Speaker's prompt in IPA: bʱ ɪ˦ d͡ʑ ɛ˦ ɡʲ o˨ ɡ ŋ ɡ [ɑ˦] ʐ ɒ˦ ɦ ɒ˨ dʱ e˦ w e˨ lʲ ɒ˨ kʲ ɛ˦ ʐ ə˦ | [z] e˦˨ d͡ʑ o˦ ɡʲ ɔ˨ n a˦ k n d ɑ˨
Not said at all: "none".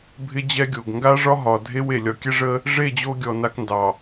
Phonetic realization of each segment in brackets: a˦, ʐ

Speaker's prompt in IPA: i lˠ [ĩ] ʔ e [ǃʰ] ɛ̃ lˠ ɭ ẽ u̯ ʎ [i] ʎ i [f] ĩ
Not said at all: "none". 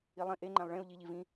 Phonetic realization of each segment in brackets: ĩ, ŋ͡ǃ, i, v

